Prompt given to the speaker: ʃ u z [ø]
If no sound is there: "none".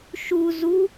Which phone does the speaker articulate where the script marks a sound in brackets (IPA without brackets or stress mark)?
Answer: u